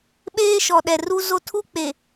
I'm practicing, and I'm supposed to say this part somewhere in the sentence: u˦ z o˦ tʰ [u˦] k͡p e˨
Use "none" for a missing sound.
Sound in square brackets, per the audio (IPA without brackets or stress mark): u˦